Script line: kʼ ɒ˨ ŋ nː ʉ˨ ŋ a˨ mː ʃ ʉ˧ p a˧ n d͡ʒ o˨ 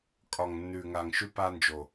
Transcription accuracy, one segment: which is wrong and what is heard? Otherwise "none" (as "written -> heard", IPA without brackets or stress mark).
mː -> ŋ